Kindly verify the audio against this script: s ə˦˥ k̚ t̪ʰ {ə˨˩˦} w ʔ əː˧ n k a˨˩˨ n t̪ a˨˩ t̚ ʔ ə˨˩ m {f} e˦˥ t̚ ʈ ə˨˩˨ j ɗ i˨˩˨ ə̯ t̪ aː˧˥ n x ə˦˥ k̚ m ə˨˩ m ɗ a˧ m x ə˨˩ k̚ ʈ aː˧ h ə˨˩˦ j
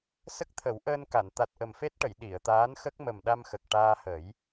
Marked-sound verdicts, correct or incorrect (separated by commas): correct, correct